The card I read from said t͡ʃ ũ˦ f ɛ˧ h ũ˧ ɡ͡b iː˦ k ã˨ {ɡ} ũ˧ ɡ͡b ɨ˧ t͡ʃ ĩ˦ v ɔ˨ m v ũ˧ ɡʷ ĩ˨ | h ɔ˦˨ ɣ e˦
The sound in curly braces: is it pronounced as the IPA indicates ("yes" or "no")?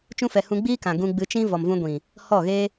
yes